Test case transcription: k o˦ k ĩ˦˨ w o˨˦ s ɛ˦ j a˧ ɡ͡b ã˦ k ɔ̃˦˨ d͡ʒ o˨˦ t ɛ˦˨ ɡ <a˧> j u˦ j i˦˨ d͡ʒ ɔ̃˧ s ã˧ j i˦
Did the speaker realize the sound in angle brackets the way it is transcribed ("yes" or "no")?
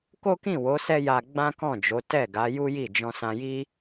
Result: no